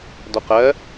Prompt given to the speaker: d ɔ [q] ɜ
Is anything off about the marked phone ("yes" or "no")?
no